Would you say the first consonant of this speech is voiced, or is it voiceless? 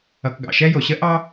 voiceless